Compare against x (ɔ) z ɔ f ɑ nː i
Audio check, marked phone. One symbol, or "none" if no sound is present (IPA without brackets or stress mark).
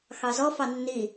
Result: ɑ